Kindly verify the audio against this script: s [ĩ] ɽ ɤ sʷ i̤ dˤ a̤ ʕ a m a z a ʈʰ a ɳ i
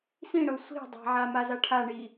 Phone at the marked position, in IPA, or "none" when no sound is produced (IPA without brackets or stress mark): ĩ